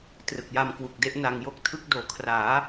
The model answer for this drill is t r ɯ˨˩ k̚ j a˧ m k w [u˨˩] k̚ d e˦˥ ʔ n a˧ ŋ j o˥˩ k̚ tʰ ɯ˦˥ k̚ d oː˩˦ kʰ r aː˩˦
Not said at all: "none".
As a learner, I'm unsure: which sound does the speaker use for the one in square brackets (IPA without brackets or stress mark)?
u˨˩